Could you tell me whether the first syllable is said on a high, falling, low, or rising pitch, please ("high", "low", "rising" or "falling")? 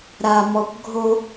low